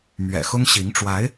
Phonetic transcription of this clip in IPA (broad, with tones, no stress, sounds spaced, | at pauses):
m ɥ ɛ̰˨˩ x ʊ˥ ŋ ɕ i˧˥ ŋ ʈ͡ʂ w a˧˥ ɪ̯